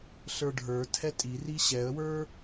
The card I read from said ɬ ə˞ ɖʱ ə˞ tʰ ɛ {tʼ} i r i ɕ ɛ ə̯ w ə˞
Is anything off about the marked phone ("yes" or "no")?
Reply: no